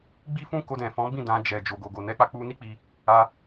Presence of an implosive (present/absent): absent